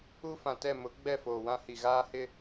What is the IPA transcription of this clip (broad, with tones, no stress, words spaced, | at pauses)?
u˦ fã˨ tɛ˦˨ mʊ˨˦ ɡ͡bɛ˦˨foː˨wã˦hi˨ ɣaː˦hɪ˦